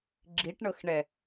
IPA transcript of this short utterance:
ɡ͡ǁ i ʈ ɳ ɤ x ɳ ɛ

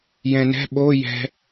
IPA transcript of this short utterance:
j ɛ̃ n ɛ̤ ɓ o j ɛ̤

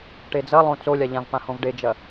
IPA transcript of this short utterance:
ʈ e d͡z ɐ lˠ õ t͡s o lʲ a ʎ ã v p ã h õ v ɖ e d͡ʒ ɐ

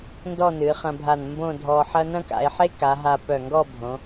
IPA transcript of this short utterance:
n d ɔ˥˧ n ɨː˩˧ χ ɐ̃˧ bʱ a˧˩ n m b õ˥˧ dʱ ɔː˧ ħ ɐ˥ n ɐ̃˥ k a̰˩˧ e̯ ħ e˥ k a˩˧ ɦ a˧ p œ˧˩ ŋ ɡ ɔ˥˧ bʱ õ˩˧

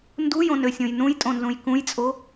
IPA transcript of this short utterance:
n d u j õ n ø sʲ õ j n ũ j tʼ õ n z ũ j k ũ j t͡sʼ o

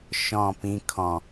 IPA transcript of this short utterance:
ʃ ɔ̃ p ĩ kʰ ɔ̃

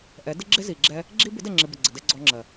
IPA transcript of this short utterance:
ʔ ɛ˨˦ d ɪ˦ ɡ͡ǁ ɪ˦ z i˨ ɡ͡ǁ ɛ˦ | ɡ͡ǁ i˦ b ɪ˨˦ d ɛ˨ ŋ͡ǁ ɪ˨ b ə˨ ɡ͡ǀ ə˨ d ɛ˧ ɡ͡ǀ ɔ˧ ŋ͡ǁ ɜ˨

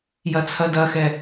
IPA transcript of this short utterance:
j ɐ t͡sʰ ɐ d ɐ x ɛ

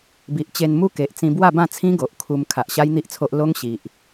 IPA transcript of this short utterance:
b i˨ ʔ t͡ɕ e˧ n m u˦ k e˨ ʔ t͡s ĩ˧ b w a˥˧ b ã˥˧ t͡sʰ ĩ˦ ɡ o˨ ʔ kʰ u˧ m kʰ a˨ ʔ ɕ a˦ j n̪ i˦ ʔ t͡sʰ o˦ ʔ l o˦ ŋ ɕ i˨ ʔ

